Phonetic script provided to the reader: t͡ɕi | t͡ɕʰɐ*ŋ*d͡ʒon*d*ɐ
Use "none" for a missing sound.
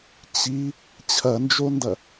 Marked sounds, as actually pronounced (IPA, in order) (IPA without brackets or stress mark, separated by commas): n, d